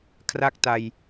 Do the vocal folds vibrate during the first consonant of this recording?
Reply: no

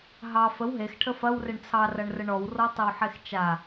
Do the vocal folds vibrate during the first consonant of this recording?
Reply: yes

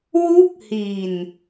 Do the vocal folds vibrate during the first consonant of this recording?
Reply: yes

